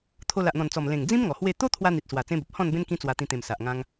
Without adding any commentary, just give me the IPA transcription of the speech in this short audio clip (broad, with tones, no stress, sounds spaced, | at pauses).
t̪ʰ o˧ l a˨ ʔ n̪ ɔ̃˨˩ n t͡s ɔ˨˩ m l ẽ˨˩ ŋ d͡z ĩ˦ m ŋ ɔ˨˩ h w e˥˧ t̪ o˦ t̪ʰ w a˧ n̪ i˨ t̚ s w a˨˩ t͡s ẽ˦ b ə˨ p̚ h ɔ̃˥˧ n b ẽ˦ n k ĩ˦ t͡s w a˧ t̪ ĩ˧ t̪ ẽ˨˩ m s a˨ ʔ ŋ ã˦ ŋ